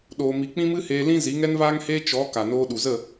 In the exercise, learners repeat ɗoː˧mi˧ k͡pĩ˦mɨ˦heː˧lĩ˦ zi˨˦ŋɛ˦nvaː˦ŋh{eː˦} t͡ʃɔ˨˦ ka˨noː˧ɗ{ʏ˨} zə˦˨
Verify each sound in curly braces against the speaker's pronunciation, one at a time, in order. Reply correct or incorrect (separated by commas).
correct, incorrect